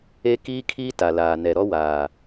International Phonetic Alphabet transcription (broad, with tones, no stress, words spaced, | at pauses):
e˦kiː˦kʰiː˦ ta˨laː˨ nɛ˨ɾɔ˦waː˨